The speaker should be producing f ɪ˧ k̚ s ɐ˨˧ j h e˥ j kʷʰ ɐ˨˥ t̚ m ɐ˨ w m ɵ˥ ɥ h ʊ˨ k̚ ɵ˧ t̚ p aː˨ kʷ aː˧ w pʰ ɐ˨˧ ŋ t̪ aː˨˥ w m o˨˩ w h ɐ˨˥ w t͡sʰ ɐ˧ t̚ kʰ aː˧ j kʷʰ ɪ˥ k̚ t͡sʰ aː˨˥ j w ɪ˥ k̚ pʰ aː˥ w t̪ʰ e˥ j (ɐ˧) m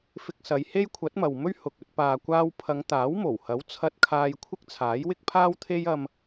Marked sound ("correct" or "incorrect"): correct